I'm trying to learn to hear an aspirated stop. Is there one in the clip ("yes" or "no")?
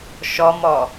no